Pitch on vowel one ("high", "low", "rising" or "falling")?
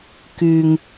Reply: low